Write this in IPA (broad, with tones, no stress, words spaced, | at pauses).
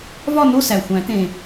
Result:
vɒ˥˨no˥˨sæ˨˩ xʷæ̃˨˩˦t̪ẽ˨˩